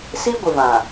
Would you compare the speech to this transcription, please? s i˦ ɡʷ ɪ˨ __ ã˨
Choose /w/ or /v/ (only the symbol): v